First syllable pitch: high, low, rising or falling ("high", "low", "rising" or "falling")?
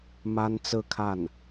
high